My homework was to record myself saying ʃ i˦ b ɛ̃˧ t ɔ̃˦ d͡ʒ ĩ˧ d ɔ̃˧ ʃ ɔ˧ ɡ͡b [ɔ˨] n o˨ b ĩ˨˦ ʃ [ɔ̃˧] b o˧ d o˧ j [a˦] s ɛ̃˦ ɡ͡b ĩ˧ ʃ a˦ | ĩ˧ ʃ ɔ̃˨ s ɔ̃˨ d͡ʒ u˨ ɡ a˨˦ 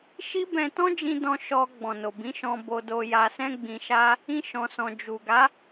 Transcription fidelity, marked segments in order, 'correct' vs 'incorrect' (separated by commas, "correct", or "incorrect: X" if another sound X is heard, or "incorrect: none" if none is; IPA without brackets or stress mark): incorrect: ɔ̃˨, correct, incorrect: a˧